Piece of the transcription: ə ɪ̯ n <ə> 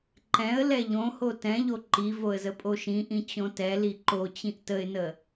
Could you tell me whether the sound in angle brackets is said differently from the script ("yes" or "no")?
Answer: no